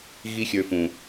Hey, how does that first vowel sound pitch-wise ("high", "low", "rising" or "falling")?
high